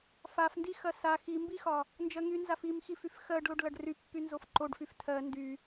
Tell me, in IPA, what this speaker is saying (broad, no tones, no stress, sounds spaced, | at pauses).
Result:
f a f n d i x ɐ s a x i m b i x ɒ | n d͡ʒ ɜ ŋ y n z a f i m x i f y f x ɜ ɖ l o ɖ l ɐ ɖ r y pː y n z o f ǃ o ɖ f y f tʰ ɜ n d y